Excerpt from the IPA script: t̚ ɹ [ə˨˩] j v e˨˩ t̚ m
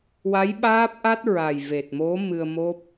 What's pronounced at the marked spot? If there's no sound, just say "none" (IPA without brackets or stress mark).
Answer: a˨˩